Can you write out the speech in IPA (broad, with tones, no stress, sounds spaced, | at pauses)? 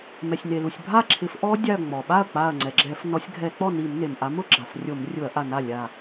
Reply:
m ɛ˩ sʲ n e˩ l u˩ sʲ bʱ a˥˩ ǁʰ ɪ˨˦ f ʔ ɔ˦˥ dʲ a˧˩ ɐ̯ ŋ͡m ɔ˩ ɓ a˥˩ ɐ̯ k͡p a˧˩ ɐ̯ ŋ͡ǀ ɛ˩ ɡ͡ǁ ɛ˧˩˧ f n ɔ˨˦ sʲ ɡʱ ɛ˧˩˧ k͡p ɔ˥˩ n i˧˩˧ m n e˩ m ʔ a˨˦ m ʊ˦˥ ɡ͡ǁ a˩ f rʲ o˧˩˧ m rʲ ʊ˧˩˧ ɐ̯ ʔ a˧˩ n a˥˩ lʲ a˧˩